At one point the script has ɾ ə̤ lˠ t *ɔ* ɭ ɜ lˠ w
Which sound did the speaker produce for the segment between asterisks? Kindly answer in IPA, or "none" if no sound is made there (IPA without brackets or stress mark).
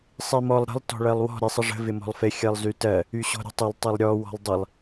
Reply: ɔ̤